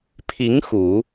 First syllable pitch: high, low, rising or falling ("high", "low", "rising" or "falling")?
rising